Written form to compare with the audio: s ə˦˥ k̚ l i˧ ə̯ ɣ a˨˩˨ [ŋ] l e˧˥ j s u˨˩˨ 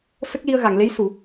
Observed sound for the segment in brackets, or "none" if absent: ŋ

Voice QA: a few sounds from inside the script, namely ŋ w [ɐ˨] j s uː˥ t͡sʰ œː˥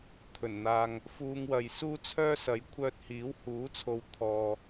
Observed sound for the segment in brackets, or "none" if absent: ɐ˨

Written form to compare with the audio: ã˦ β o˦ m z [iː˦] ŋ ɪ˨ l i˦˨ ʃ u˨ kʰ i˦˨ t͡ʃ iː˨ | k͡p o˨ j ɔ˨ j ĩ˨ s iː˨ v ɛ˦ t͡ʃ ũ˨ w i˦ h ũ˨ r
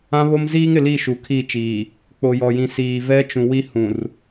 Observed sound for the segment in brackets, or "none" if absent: iː˦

